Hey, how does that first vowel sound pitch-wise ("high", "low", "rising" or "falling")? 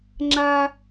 high